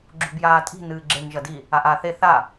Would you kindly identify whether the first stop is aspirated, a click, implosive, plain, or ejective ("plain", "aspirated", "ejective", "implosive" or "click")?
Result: click